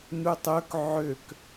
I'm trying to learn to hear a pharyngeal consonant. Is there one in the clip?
yes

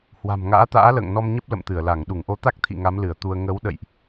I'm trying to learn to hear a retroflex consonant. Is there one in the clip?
no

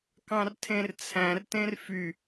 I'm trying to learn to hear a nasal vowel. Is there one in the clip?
yes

